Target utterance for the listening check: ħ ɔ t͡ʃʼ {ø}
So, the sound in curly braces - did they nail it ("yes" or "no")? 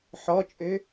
yes